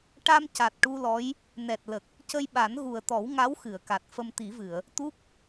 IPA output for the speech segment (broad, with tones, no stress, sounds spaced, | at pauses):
ʈ a˧ m c a˨˩ t̚ ʈ u˧ l ɔ˧˥ j | n ɛ˨˩ t̚ l ə˨˩ k̚ | c ə˧ j ɓ a˨˩˦ n ɣ u˨˩ ə̯ t̪ ɔ˨˩˦ w ŋ a˧˥ w x ɨ˨˩˨ ə̯ k a˨˩ t̚ f ə˧ m t̪ i˨˩˦ v ɨ˨˩˨ ə̯ | t̪ u˦˥ k̚